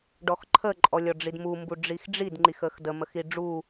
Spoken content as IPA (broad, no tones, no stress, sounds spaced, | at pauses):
ɖ ɔ x ǃʰ ə ǃʼ ɔ lʲ ɔ ɖ͡ʐ i d m u m b u ɖ͡ʐ i x ɖ͡ʐ i d ŋ͡ǃ i x ə x d ə m ə x i ɖ͡ʐ u